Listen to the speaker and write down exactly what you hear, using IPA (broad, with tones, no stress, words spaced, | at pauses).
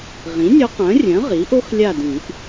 ʁĩ˩˥nʲœ˧˥q œ̃˩˥rʲœ̃˩˥ ʁi˩˥ʔo˥xlʲa˦˨dĩ˨˩˦ʔ